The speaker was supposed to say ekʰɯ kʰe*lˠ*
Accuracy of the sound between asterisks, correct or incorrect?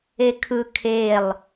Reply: correct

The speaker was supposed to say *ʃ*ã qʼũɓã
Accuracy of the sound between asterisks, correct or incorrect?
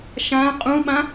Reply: correct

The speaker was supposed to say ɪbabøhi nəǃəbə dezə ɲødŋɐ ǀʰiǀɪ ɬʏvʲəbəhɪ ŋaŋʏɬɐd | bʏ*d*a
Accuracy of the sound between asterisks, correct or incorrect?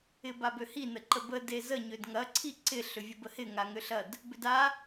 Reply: correct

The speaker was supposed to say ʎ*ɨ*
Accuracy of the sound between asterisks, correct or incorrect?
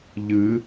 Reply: correct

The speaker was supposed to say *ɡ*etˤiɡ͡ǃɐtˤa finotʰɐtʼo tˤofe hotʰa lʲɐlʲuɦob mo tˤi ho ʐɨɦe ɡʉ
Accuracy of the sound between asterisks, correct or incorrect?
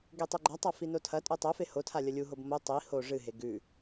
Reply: correct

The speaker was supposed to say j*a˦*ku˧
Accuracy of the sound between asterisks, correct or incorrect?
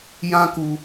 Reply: incorrect: ã˦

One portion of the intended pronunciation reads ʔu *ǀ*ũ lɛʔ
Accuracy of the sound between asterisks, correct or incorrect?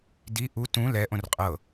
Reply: incorrect: t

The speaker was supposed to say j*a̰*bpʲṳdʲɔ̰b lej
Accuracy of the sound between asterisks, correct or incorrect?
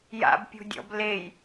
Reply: correct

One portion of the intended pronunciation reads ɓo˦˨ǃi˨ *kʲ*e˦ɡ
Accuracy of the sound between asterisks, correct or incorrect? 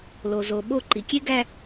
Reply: correct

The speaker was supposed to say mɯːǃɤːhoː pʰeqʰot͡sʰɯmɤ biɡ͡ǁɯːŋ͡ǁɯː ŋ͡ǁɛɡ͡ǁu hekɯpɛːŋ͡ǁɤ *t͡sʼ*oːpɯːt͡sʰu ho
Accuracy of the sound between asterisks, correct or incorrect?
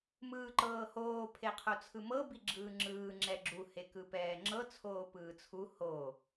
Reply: incorrect: t͡sʰ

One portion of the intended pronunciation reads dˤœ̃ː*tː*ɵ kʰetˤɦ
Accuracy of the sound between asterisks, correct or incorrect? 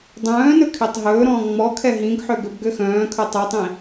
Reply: incorrect: n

